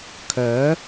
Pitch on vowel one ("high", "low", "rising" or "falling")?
rising